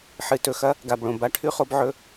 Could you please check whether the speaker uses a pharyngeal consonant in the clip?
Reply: yes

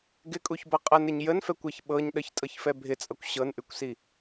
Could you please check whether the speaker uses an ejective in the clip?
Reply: yes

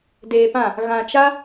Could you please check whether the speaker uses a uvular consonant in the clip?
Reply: no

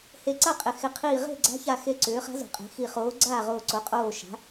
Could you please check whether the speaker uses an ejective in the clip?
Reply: yes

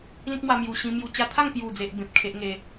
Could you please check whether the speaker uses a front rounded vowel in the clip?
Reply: no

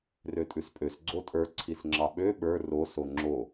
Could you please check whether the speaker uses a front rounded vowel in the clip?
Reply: yes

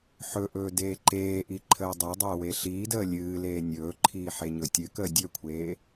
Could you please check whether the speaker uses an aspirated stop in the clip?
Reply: yes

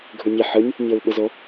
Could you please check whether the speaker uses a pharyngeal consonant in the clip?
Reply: yes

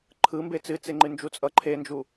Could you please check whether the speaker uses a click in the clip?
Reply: yes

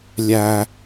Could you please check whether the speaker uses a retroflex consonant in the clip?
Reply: no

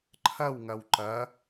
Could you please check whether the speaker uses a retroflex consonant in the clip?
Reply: no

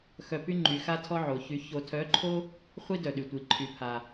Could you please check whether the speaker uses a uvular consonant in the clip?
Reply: yes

